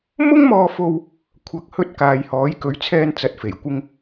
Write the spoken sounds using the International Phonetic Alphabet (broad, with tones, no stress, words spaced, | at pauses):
mʊ˥ŋmɔː˧fo˧w | kʷʰɐ˨˥k̚hɵ˧t̚ kaː˨jhɔː˨˧j kɵ˨˥ɥt͡sʰɛː˧nt͡sɐ˨˥t̚ fe˨˩jkʷɪ˧ŋ